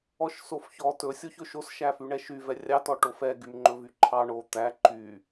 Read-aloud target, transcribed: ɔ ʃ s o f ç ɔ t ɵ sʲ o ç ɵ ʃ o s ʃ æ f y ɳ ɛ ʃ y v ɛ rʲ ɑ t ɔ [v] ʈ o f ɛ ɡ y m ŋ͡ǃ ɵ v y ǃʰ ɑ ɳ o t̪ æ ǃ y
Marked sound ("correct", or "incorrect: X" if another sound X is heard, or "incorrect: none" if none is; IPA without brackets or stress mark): incorrect: none